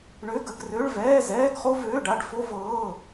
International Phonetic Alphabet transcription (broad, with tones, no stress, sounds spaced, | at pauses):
ɳ ø˧˥˧ ɡ ə˧˥˧ ɡ r ø˧˥˧ ɭ v ɛː˧˥˧ z ɛː˧˥˧ ɡ χ o˥ v øː˧˥˧ ɖ a˧˥˧ ɖ f o˥ v ɤː˧˥˧